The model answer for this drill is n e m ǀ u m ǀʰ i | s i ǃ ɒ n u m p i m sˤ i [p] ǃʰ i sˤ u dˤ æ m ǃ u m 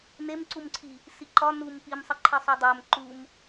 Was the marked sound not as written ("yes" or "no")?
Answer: yes